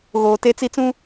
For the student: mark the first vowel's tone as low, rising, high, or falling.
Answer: low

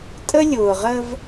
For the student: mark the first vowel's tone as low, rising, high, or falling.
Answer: high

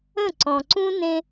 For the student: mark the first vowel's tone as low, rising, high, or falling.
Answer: falling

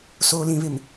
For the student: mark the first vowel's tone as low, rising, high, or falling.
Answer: low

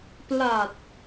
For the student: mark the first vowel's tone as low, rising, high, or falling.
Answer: low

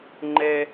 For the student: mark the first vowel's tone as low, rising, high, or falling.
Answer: low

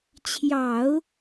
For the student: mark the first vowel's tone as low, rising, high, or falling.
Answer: low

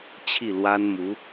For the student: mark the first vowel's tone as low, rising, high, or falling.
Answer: falling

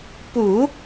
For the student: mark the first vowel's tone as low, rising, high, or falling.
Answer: low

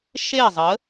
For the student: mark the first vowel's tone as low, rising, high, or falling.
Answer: falling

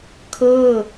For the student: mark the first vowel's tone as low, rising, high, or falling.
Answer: falling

